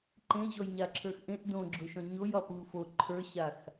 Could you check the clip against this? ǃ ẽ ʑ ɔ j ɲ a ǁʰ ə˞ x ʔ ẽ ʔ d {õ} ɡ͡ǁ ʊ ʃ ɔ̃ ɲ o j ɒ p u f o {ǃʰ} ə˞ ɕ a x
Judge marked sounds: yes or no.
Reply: yes, yes

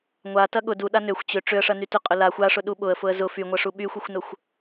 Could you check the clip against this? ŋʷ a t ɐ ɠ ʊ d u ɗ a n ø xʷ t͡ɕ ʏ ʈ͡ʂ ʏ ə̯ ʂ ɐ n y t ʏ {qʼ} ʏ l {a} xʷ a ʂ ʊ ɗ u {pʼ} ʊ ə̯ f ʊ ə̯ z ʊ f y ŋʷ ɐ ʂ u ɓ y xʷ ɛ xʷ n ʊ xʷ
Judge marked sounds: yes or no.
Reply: yes, yes, no

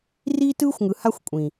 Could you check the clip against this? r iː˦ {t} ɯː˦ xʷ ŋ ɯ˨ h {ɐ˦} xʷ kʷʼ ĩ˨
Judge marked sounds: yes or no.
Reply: yes, no

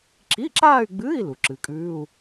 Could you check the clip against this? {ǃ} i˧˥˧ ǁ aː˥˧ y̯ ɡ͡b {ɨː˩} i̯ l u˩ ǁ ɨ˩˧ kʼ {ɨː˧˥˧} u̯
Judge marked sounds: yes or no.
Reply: no, no, no

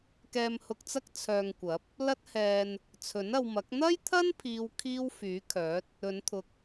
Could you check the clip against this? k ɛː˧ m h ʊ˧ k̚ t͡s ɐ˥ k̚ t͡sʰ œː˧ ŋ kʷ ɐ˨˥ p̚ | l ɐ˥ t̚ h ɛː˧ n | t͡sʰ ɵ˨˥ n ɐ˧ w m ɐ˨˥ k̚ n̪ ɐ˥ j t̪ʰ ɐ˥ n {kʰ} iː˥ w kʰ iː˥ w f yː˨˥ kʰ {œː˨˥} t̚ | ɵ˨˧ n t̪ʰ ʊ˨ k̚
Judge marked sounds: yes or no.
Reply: no, yes

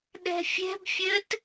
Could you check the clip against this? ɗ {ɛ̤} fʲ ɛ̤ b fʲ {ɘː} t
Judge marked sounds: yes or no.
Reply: yes, yes

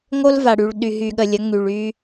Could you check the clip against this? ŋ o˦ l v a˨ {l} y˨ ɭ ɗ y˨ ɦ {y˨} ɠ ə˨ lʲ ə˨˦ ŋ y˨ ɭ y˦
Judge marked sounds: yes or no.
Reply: no, yes

